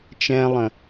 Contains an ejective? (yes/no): no